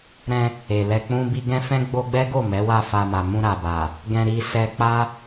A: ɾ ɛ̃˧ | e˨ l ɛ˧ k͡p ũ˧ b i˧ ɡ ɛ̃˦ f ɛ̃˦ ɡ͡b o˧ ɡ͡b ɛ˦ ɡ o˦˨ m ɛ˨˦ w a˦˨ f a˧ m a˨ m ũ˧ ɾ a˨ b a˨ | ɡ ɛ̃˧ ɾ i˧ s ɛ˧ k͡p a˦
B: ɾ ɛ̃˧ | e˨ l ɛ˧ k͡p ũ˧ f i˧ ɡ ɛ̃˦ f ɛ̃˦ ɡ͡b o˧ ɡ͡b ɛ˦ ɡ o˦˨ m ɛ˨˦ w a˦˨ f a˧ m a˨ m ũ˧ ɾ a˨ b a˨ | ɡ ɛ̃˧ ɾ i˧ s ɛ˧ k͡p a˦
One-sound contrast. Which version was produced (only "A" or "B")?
A